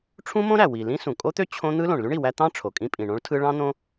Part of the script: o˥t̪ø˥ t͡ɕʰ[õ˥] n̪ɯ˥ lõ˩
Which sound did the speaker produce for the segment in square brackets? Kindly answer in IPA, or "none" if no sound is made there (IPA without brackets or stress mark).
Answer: õ˥